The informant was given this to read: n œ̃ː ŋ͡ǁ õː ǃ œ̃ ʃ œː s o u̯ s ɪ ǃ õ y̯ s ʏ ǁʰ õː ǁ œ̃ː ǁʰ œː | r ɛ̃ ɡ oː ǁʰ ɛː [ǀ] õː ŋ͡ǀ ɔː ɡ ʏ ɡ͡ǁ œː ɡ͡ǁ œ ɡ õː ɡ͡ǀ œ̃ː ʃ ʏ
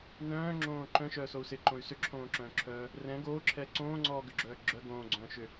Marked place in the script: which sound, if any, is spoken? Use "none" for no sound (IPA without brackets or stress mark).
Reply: ǀ